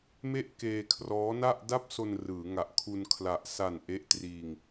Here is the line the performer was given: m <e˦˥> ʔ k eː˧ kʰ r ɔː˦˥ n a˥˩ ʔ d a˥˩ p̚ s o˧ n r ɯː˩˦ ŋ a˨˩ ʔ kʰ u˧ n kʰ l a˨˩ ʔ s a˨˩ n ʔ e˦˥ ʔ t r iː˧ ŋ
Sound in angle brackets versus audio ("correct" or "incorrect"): incorrect